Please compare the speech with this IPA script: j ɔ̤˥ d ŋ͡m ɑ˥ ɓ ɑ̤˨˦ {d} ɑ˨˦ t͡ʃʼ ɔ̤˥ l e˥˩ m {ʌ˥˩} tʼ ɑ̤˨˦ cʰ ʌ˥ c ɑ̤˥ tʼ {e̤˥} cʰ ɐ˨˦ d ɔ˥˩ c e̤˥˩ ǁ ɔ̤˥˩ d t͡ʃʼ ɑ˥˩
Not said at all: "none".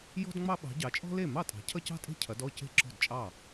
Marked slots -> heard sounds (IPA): ɟ, ɑ˥˩, e̤˥˩

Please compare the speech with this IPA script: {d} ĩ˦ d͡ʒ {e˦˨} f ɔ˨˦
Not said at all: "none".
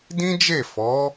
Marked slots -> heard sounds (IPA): d, e˦˨

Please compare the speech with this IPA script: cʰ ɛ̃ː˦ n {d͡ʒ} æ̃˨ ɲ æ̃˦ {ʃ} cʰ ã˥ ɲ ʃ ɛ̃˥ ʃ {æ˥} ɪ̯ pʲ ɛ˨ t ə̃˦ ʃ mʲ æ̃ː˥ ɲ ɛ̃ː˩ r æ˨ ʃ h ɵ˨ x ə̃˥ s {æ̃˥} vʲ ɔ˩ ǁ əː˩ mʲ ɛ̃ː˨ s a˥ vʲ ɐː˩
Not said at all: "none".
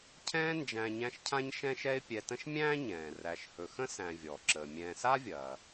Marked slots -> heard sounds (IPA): d͡ʒ, ʃ, ɛ˥, æ̃˨

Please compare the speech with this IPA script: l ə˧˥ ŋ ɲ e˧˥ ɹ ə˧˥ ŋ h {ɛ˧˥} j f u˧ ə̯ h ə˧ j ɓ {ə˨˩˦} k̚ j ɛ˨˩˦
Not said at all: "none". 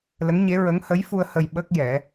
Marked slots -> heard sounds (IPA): ə˧˥, ə˦˥

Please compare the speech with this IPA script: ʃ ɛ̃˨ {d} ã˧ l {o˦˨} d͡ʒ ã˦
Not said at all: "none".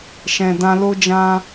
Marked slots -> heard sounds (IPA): d, o˦

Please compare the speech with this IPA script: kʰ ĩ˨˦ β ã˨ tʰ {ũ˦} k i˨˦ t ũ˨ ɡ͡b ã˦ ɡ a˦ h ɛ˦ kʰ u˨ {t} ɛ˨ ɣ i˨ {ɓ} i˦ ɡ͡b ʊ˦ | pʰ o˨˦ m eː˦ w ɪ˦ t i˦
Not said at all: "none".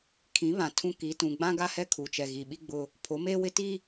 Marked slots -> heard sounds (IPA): ũ˦, t͡ʃ, ɓ

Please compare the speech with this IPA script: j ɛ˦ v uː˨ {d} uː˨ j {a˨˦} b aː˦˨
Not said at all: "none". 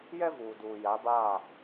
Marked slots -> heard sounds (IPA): d, a˨˦

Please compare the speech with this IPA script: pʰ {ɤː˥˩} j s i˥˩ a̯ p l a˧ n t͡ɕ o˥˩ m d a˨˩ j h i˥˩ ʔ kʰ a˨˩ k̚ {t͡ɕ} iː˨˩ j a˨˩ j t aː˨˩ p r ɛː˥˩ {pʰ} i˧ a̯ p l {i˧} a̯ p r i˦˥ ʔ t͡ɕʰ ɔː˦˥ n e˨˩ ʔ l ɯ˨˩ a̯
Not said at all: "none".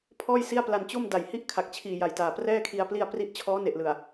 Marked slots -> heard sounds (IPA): ɔː˥˩, t͡ɕʰ, kʰ, i˧

